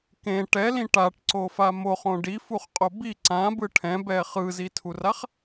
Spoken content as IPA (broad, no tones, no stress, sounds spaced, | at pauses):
k ẽ ʈ ɛ l ĩ ʈ a ʈ ǀ o f a m o χ õ ɖ i f u χ qʼ o b i ǀ ã b ɯ ʈʰ ɛ̃ b ɛ χ ɯ z i tʰ u r a χ